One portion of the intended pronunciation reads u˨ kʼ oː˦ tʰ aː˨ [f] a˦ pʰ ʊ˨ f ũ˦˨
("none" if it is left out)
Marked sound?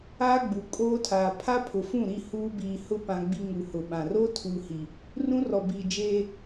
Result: pʰ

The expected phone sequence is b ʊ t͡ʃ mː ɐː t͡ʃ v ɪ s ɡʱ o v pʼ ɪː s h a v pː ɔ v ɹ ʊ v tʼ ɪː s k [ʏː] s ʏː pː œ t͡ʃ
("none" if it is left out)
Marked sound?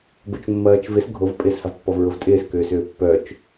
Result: ʏː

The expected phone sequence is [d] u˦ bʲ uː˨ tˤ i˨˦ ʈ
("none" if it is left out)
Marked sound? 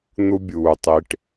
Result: n̪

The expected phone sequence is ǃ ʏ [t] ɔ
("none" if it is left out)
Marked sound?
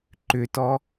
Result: t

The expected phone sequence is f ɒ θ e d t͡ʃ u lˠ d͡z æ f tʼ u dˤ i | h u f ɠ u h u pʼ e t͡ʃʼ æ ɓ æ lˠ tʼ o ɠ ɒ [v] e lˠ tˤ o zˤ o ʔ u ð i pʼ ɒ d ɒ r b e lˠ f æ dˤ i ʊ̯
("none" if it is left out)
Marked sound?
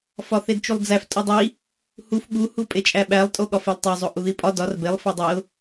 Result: f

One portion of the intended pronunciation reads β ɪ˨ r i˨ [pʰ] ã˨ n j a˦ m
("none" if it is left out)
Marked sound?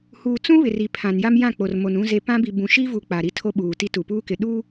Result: pʰ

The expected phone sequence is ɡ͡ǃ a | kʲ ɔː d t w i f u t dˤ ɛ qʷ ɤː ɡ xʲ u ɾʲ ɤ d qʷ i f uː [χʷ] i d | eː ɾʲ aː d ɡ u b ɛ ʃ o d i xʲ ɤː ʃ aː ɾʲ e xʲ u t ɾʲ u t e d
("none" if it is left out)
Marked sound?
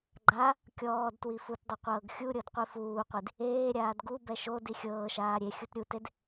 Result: qʷ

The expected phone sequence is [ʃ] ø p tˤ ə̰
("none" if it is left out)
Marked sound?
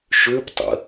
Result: ʃ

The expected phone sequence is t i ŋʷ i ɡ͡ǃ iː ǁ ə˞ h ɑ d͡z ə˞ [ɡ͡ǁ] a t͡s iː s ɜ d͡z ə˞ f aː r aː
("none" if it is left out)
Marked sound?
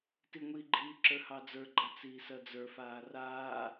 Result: ɡ͡ǃ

